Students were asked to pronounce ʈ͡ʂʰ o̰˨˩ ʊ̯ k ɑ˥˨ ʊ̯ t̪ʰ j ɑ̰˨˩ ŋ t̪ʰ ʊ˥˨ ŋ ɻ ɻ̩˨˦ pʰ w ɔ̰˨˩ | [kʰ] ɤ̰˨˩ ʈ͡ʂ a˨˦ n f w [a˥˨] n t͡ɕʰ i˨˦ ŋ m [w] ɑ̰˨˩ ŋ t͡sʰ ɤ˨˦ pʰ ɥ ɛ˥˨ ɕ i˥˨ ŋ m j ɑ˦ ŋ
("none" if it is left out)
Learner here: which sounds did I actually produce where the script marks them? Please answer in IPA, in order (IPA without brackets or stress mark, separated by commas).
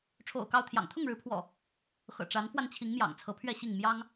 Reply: x, a˧, j